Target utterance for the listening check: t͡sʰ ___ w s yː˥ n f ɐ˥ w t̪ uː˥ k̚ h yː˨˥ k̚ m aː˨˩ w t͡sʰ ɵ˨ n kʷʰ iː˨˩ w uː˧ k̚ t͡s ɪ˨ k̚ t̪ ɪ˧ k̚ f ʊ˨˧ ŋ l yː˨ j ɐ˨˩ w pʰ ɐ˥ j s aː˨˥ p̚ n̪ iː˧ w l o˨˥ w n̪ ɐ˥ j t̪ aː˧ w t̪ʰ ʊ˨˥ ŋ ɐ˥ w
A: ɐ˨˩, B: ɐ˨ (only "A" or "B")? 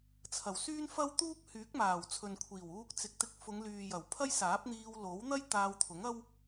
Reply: A